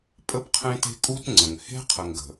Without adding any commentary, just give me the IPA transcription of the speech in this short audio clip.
pʼə˦bqʰẽ˦te̤˦ kʼu˦tŋ͡ǀə̃˨ŋ he̤˦qʰə˨ŋɡə̤˨

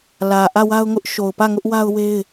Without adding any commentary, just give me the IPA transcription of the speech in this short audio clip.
lä˨ʔä˦˨wa˦ʊ̯ŋʊ˦ʔ ʃo˨ʊ̯pä˦˨ ŋʊ˦ʔwa˦ʊ̯we˦ɪ̯

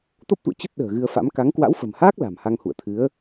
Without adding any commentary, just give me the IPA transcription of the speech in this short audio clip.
t̪o˦˥p̚t̪ṵ˧˨ə̯ t͡ɕə˦˥t̚ ɗə̤ː˨˩ɣɨ˧ə̯fa̰˧˥m ka˨˦ŋ kwa̰˧˥wfə̤˨˩mhaː˦˥k̚ la̤˨˩mha˧ŋhṵ˧˨ə̯t̪ʰɨ˨˦ə̯

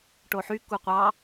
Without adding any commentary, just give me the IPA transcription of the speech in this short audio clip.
ʈoħy kuqʷɑ

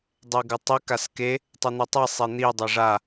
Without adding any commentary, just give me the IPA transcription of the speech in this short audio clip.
dˤeɡɯtˤi kaske | tˤɯn̪itˤɛ sˤen̪i dˤɛʐa

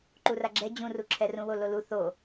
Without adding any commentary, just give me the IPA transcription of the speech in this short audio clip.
ǃuraɡ͡ǁɛ d͡ʑũruǁʰɛ rũwololu θo

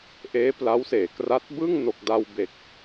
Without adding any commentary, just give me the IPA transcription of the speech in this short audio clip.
ʔeː˦˥pla˦˥wseː˩˦kra˦˥t̚ bɯ˥˩ŋ no˨˩k̚da˧w be˨˩k̚

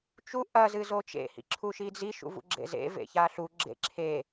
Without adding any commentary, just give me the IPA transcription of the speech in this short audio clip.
t͡ʃu ʔɐ zɨzot͡ʃḛ hḭǁʰuʃid͡zi ʃṵvṵɡ͡ǁḛzḛ vḛçaɬu ɡ͡ǁḛǁʰe

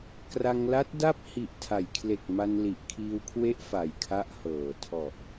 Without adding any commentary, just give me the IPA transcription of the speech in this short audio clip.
kra˧ŋla˦˥t̚ da˥˩p̚ hi˨˩ʔtʰa˩˦jkʰle˨˩k̚ ma˧nli˨˩ʔkʰiː˧wkʰwe˦˥ʔ fa˨˩jkʰa˦˥ʔhɤː˨˩ tʰɔ˨˩ʔ

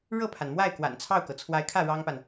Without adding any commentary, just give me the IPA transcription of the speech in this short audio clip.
ɻɤ˥˩pʰa˩nmwa˥˩ɪ̯kwa̰˨˩n t͡sʰɑ˥˩ʊ̯kɤ˩ t͡sʰwa˧˥ɪ̯kʰä˥˩ ɻɑ˥ŋpa˨n

